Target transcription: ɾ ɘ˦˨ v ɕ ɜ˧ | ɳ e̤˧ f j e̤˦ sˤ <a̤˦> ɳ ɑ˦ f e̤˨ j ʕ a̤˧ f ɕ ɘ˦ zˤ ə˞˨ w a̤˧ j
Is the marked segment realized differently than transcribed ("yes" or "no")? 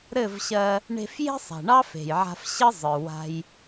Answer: yes